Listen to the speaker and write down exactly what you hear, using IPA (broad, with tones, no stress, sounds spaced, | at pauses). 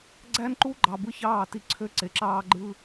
ɡ͡ǀ æ˦ n ǃ u˦ ɡ͡ǃ ɑ˨ b ɯ˦ ç ɑː˦˨ t i˦ ǀʰ ø˦ ǀ e˨ ǁ ɑː˦ ɡ͡ǃ ɯ˦